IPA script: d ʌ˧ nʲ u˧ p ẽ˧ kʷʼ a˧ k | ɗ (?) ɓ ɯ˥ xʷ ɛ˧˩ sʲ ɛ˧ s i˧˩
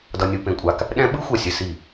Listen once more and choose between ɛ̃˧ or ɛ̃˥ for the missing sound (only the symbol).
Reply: ɛ̃˥